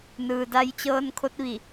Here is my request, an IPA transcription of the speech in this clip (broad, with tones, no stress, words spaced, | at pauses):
nɯː˩da˧j t͡ɕɤː˧nkʰo˧˥t̚ʋi˧˩